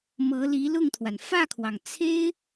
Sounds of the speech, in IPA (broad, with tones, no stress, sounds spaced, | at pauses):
m ɤ˧˥ l i˧˥ l ʊ˥˩ ŋ t̪ʰ w a˩ n f ä˥˩ kʰ w ɑ˩ ŋ t͡sʰ e˥ ɪ̯